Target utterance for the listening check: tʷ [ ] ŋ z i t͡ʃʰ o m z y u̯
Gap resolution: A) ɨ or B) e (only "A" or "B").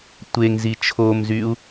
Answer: B